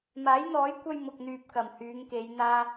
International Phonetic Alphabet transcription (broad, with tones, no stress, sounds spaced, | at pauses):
m aː˨˥ j n̪ ɔː˨˥ j kʷ ɐ˧ j m ʊ˨ k̚ n̪ yː˨ p̚ k ɐ˨˩ m h yː˨˧ ŋ k e˨˧ j n̪ aː˧